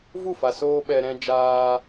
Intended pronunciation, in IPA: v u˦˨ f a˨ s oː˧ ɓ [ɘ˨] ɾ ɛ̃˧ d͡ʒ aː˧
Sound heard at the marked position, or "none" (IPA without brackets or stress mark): ɛ˨